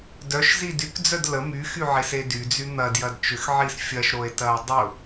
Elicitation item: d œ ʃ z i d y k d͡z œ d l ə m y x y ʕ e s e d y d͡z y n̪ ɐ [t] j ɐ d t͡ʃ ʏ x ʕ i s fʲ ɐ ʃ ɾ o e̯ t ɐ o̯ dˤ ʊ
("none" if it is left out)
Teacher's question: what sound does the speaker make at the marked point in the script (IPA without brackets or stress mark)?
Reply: d